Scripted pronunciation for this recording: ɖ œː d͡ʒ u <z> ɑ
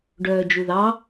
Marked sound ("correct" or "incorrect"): incorrect